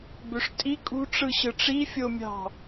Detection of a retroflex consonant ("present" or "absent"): present